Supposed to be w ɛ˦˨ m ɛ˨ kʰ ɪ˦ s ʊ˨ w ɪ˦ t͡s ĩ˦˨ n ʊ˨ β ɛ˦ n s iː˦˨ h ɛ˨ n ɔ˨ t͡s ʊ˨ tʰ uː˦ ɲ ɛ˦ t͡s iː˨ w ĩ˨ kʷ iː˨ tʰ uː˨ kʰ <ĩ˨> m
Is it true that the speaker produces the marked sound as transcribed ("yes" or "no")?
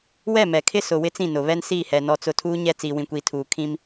no